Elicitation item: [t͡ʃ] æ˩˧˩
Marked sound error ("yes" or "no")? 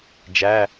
yes